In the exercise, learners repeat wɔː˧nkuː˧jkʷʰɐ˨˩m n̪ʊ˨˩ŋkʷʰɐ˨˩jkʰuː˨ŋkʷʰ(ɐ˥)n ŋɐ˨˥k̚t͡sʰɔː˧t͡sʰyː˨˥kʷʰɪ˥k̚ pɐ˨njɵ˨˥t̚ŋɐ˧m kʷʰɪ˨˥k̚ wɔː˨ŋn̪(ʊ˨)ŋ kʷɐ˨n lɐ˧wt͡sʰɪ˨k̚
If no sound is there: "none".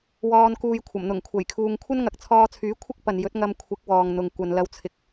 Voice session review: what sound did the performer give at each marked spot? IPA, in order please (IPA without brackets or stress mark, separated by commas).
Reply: ɐ˥, ʊ˨